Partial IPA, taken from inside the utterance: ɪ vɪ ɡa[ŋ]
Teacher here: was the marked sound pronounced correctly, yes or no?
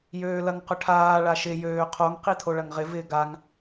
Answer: yes